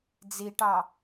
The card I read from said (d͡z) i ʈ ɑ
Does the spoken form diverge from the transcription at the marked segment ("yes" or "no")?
no